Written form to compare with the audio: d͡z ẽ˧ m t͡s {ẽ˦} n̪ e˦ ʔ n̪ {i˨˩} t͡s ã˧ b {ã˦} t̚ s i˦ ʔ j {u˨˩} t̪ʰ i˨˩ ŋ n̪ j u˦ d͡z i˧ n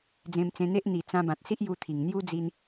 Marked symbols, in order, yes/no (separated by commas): no, yes, no, no